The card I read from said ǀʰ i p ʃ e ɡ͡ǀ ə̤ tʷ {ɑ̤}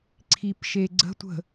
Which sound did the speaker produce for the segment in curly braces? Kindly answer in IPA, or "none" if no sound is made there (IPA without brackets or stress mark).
ə̤